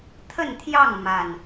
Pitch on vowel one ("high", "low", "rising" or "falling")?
falling